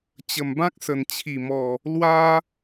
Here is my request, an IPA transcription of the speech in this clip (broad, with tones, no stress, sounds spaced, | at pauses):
t͡ɕ ə˨˩ m b ã˦ k̚ s ə˨˩ n t͡ɕʰ i˨˩ m ɔ˨˩ | l w a˦